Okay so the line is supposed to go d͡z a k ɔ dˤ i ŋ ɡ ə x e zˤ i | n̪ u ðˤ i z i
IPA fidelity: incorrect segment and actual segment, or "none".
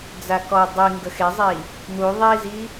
none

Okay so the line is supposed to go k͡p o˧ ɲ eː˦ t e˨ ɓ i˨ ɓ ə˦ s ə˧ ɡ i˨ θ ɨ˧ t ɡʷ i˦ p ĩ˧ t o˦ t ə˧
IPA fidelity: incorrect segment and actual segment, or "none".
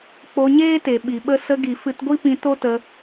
θ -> f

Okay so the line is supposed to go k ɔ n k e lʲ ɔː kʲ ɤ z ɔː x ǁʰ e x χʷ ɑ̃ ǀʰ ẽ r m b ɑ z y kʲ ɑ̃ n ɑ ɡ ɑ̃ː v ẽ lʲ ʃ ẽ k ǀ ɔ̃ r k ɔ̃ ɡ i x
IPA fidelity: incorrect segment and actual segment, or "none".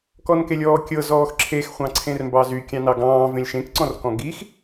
none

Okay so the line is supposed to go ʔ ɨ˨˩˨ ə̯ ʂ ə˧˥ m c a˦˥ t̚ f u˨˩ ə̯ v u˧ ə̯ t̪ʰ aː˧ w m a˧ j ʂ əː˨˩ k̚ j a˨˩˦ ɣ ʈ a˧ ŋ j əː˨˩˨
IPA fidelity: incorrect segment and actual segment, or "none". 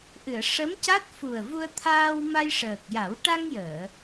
ɣ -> w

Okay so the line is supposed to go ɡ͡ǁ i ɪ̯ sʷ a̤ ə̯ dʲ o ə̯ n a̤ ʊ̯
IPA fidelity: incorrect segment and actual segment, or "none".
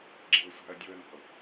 ɪ̯ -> ə̯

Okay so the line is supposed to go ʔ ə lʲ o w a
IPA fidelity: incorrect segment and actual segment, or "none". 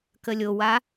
ʔ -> k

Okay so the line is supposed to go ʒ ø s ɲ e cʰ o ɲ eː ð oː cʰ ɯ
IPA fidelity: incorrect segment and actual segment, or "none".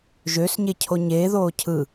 none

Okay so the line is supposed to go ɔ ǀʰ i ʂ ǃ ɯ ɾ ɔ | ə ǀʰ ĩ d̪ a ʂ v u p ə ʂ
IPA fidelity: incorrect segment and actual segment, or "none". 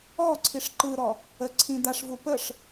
none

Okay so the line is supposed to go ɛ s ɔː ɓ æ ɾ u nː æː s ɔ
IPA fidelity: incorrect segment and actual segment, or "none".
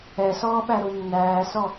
none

